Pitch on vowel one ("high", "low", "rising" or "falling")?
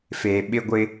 low